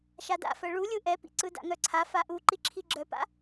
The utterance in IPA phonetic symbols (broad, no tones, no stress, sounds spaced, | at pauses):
ʃ a d a̰ f ɜ ɭ u lʲ ɯ ʔ ɛ p ḭ ǀ ɯ d a̰ ŋ œ ǀʰ a f a ʔ u ǃ i ǁʰ i ɡ͡ǁ œ p a̰